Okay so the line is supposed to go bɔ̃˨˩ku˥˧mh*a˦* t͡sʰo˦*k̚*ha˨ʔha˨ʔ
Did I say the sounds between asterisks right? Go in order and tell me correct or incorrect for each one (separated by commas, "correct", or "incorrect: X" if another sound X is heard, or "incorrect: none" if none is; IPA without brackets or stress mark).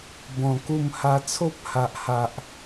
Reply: correct, incorrect: p̚